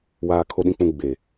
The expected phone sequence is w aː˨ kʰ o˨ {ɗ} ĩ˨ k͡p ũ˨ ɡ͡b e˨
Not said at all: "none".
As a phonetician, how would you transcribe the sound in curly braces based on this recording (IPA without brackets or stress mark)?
ɗ